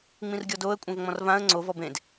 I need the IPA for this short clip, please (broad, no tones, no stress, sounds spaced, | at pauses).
ŋ͡m ĩ r ɡʲ ɔ d o ə̯ kʷʼ ɛ̃ v ŋ͡m ɔ̃ r v ã ə̯ ŋ͡ǀ o v ɔ b ẽ d